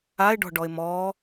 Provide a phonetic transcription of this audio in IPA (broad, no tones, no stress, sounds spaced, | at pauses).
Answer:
a ɪ̯ ɖ ɔ̤ ɖ ɔ ɪ̯ m ɔ